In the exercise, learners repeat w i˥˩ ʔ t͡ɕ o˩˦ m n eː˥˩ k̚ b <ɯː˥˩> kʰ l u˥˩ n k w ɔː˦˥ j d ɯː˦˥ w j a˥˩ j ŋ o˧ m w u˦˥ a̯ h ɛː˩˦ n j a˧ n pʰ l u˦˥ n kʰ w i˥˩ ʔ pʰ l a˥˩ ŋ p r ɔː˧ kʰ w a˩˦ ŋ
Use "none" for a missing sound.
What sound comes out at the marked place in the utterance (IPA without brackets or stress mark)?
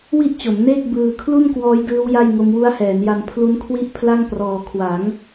ɯː˧